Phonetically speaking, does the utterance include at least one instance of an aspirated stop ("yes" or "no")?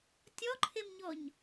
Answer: yes